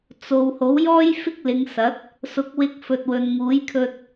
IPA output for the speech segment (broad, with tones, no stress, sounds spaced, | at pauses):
t͡s o˨ w h o˨˥ w j ɔː˥ j f ɪ˥ k̚ l ɪ˨˧ ŋ s ɐ˨˥ t̚ | s ʊ˨˥ k̚ w ɪ˧ k̚ f ɵ˨ t̚ w ɵ˨ n ŋ uː˨˥ j kʰ ɵ˧ t̚